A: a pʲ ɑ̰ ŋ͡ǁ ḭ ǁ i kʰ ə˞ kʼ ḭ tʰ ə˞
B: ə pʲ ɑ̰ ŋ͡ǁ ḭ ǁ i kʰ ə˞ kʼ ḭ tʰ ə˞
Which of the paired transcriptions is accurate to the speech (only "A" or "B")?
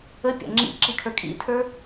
B